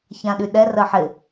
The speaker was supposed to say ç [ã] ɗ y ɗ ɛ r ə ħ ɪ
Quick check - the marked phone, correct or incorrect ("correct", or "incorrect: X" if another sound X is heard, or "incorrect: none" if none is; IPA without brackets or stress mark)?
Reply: correct